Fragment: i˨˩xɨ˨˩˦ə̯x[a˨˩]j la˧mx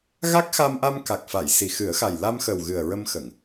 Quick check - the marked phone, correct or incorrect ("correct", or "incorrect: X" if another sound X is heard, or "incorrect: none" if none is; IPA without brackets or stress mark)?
correct